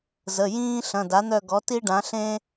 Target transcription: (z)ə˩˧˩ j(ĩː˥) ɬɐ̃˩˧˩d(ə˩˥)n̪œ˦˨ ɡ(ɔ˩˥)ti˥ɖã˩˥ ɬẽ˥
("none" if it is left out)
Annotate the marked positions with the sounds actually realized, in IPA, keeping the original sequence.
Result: z, ĩː˥, a˩˥, ɔ˩˥

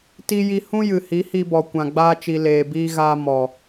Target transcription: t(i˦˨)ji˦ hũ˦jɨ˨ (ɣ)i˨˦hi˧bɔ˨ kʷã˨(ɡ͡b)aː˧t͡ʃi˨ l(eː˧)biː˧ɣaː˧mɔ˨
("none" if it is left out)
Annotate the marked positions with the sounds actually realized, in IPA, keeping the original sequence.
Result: i˦, h, ɡ͡b, eː˨

